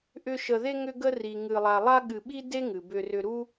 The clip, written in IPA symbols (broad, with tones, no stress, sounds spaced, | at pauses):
ʔ ʏ˥ ʃ ə˧ ð e˥ ŋ ʏ˥ ɡ ə˥ r i˧ ŋ ɨ˧ lˠ a˧ lˠ a˥ ɠ ɨ˧ ɓ i˥ d e˥ ŋ ɨ˩ b ʏ˧ r ʏ˧ ɾ u˥